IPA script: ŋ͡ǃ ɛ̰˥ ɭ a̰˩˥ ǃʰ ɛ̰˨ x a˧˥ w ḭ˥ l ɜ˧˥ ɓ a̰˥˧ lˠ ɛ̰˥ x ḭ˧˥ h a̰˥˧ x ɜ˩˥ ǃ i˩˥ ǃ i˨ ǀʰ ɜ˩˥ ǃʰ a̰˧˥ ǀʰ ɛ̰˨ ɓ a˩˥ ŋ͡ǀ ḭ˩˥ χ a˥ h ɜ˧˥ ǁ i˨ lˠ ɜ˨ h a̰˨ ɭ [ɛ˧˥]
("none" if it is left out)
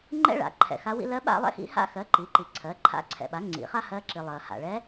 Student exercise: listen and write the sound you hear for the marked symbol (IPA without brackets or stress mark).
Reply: ɛ˧˥